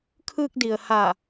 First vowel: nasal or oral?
oral